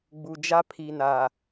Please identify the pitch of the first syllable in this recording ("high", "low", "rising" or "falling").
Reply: low